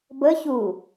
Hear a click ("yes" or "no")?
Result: no